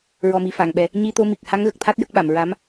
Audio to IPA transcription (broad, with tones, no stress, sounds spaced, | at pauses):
ɹ ɔ˨˩ m i˨˩ f a˨˩˨ ŋ ɓ ɛ˨˩ | ɲ i˧ t̪ o˧ m i˨˩ k̚ h a˧˥ ŋ ɣ ə˨˩ k̚ t̪ʰ a˦˥ t̚ j ə˦˥ k̚ ɓ a˨˩˨ m ɹ a˧˥ m